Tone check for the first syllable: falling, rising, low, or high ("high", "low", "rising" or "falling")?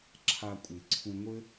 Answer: low